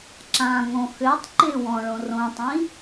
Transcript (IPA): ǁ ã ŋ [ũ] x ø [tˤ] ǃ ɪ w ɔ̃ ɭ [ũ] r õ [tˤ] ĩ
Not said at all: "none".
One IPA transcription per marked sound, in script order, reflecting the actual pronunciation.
õ, tˤ, õ, tˤ

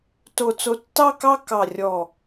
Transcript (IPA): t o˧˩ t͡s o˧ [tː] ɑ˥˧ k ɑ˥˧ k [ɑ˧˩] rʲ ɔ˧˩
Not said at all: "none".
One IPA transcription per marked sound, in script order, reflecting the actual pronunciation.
tː, ɑ˧˩

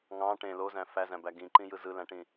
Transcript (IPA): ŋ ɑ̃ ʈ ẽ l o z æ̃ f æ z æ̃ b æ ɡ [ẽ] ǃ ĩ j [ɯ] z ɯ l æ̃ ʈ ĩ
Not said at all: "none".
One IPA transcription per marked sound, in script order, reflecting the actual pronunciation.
ĩ, ɯ

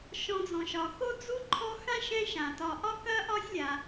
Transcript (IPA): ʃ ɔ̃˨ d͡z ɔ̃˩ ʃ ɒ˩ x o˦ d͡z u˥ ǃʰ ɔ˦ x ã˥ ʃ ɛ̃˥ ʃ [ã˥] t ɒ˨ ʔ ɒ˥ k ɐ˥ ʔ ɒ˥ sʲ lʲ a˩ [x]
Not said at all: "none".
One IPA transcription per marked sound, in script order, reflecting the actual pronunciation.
ã˩, none

